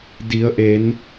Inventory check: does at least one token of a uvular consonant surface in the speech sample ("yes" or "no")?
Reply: no